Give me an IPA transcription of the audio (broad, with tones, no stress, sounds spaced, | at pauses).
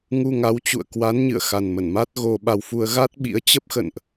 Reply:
ŋ u˧ ŋ a˨˦ w t͡ɕ ṵ˧˨ ə̯ k w a˨˦ n ɲ ɨ̰˧˨ ə̯ x a˨˩ n m ə˧˩ n m a˦˥ t̚ ɣ o˧ ɓ a˧ w f u˧ ə̯ ɣ a˦˥ t̚ ɓ ḭ˧˥ ə̯ t͡ɕ ə˦˥ p̚ x ə̰˧˨ n ʔ